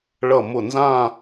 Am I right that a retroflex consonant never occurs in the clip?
no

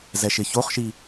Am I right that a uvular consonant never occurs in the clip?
no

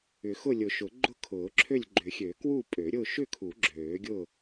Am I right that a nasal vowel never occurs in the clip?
yes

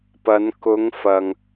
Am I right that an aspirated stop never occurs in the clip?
yes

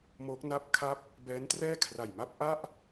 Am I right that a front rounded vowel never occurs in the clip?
yes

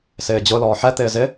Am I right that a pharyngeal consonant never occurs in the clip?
no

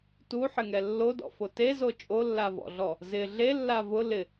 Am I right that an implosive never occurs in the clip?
yes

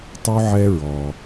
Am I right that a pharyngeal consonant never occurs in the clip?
no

